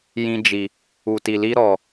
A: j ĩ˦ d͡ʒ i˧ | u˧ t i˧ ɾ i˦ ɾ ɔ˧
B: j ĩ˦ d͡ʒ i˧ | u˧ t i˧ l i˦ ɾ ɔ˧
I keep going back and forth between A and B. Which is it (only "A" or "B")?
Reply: B